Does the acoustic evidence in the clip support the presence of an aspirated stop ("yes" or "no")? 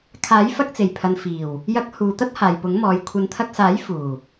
yes